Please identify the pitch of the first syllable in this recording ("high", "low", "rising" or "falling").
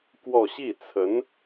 falling